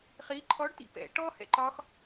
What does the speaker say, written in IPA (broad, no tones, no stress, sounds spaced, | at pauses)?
χ i ǃʰ ɔ ɖ t ḭ p ɛ̰ ʈ ɔ h ɛ̰ ǃ ɒ x